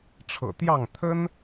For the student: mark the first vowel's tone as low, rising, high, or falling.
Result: low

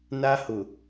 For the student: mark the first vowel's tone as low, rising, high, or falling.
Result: high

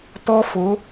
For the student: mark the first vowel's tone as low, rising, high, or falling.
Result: high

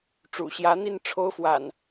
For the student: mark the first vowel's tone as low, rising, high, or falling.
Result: low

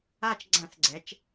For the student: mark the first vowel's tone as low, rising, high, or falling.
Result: falling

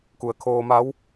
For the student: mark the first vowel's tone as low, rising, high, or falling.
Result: low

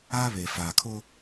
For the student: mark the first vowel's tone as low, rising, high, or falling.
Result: high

